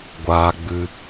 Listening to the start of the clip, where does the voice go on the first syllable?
high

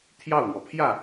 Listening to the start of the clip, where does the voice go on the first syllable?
falling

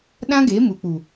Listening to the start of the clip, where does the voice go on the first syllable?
high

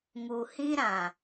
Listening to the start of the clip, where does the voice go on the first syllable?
low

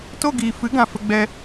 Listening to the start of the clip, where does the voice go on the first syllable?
falling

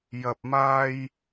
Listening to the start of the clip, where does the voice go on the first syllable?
low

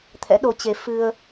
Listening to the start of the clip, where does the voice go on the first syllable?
rising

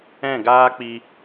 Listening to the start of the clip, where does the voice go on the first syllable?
falling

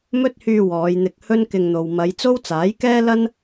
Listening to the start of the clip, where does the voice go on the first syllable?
high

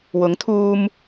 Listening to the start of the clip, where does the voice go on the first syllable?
rising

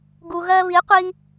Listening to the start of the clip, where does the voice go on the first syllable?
low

